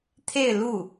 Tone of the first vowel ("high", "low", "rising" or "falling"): falling